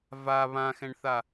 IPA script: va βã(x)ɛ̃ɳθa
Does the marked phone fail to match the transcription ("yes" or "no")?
no